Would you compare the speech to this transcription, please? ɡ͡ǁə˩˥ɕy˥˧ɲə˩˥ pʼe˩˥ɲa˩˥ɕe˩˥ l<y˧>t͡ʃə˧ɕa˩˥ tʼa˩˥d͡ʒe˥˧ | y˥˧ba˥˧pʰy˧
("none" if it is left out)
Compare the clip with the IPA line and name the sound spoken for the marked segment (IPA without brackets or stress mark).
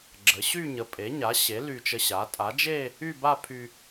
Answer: y˧